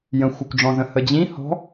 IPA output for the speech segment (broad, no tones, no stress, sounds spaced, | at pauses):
j ə̃ xʷ ɯ kʷ ɖ͡ʐ ɔ̃ z ə̃ h ə d͡ʑ ĩ h ɔ̤